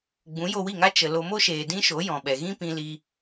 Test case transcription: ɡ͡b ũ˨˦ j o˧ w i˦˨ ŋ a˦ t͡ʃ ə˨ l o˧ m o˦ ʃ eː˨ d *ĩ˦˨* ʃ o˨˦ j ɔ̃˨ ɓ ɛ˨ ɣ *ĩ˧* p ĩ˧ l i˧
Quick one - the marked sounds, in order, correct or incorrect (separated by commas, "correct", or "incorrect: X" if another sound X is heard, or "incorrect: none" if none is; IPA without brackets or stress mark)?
incorrect: ĩ˦, incorrect: ĩ˦